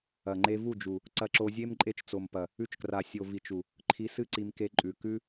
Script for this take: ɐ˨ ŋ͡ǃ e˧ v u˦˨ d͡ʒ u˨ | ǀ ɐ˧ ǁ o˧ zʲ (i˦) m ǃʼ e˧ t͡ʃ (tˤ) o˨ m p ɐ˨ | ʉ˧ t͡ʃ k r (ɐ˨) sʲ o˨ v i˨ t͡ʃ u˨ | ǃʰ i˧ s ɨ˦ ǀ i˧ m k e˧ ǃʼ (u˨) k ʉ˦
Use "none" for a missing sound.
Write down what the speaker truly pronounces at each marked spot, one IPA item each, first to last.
e˦, t͡s, a˨, ʉ˨

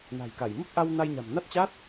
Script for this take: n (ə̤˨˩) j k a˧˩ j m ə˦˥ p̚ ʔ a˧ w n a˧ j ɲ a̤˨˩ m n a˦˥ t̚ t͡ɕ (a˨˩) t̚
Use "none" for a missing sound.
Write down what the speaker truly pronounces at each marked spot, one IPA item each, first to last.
a̤˨˩, a˦˥

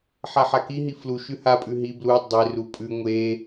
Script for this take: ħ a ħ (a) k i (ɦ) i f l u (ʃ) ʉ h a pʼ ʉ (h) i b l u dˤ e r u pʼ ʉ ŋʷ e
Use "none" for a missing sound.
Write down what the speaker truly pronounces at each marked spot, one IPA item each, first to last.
a, ɦ, ʃ, ɦ

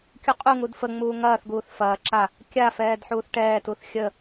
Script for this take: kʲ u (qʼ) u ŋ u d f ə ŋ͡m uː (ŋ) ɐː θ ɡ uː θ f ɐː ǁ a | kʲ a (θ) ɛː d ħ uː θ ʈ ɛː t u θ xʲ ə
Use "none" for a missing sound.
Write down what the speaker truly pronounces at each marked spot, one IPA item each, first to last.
qʼ, ŋ, f

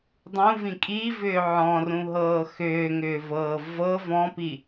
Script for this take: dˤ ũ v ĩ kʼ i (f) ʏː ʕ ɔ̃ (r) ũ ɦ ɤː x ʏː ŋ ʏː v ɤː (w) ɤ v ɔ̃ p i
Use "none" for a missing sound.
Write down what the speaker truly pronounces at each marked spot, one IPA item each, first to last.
v, r, v

